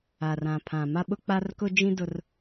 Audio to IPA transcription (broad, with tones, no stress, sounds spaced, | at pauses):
a˨ r ã˨ pʰ ã˨ m a˦ ɓ ʊ˦ k͡p a˦ r k ʊ˦ d͡ʒ ĩ˦ d ʊ˦ r